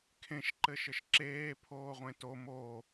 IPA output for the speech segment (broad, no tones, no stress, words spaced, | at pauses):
kʰẽʃǃɘʃɘʃ ǁeːpʰoːʁʷẽ to mo